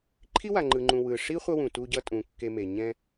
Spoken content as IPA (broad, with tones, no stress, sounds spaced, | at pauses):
ǃʰ i˥ w a˨ ŋ͡ǃ ɯ˨ ŋ͡ǃ ũ˨ w ɯ˨ ʂ i˥ χʷ ʌ˦ w ũ˩ t u˦ ɟ ʌ˦ tʼ ũ˨ kː e˨ m e˩ ɲ ɛ̃˦